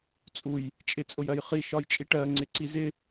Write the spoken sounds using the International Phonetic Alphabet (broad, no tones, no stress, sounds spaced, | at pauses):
t͡sʼ u j | t͡ʃʼ ɪ t͡sʼ ʊ j ɜ j χ i ʃ ɒ j t͡ʃʼ i ʈ ɜ ŋ͡ǀ ɪ ǀ i z ɪ